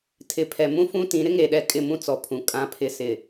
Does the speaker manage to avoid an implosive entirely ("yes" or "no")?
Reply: no